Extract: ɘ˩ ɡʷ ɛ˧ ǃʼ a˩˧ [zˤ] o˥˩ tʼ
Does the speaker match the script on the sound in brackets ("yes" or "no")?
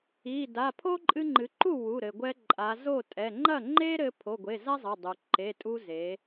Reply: no